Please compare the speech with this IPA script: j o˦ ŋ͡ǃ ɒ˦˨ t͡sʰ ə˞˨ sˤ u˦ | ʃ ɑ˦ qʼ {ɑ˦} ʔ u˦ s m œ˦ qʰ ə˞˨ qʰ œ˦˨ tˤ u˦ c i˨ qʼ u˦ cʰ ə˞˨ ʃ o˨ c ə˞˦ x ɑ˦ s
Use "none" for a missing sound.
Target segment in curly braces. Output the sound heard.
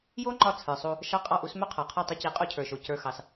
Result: ɑ˦˨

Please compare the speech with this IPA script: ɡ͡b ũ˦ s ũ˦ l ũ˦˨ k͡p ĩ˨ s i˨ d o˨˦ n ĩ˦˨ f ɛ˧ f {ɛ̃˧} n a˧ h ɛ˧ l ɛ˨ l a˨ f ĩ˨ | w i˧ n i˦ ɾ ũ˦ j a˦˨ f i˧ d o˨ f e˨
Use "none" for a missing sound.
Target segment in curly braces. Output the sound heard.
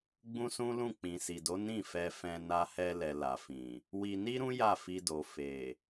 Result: ɛ̃˧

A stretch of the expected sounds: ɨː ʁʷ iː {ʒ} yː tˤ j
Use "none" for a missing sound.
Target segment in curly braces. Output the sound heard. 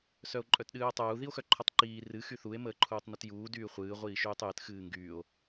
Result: ʃ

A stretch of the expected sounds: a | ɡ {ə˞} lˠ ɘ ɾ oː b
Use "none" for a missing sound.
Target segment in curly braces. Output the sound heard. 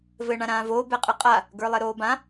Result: ə˞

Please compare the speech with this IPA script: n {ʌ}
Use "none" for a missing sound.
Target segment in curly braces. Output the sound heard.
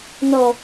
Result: ɔ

